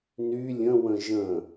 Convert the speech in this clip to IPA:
n y lʲ ə̃ w ə̃ ʒ ə̃

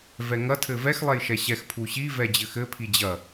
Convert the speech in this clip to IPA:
v ɛ ŋ ɐ tʰ ɘ v ɛ x lˠ ɛ j ʃ ɛ ɕ ɛ x pʰ u ɕ i v ɛ d͡ʑ ɘ x ɘ pʰ i d͡ʑ ɐ

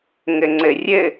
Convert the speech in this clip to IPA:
ŋ ɘ ŋ͡ǀ ɘ rʲ ɘ

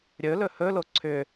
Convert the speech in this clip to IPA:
ɾʲ ɵ l ɵ h ɵ l o ǀʰ ʏ

